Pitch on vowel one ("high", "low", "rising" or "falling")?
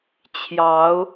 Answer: rising